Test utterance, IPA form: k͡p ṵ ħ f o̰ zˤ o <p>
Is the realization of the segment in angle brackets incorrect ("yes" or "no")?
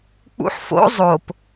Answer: no